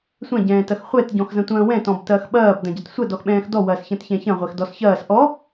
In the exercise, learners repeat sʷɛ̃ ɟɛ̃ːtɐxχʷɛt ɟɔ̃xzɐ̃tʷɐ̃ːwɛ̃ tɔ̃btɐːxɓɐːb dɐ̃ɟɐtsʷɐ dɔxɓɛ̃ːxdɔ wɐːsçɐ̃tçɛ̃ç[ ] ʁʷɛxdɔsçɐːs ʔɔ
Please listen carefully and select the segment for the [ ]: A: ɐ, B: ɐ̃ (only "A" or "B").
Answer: B